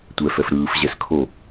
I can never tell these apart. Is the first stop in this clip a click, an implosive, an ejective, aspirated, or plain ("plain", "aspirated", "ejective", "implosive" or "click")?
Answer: plain